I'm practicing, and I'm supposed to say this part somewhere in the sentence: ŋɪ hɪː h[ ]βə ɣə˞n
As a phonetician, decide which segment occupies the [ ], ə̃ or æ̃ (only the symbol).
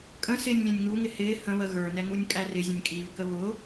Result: ə̃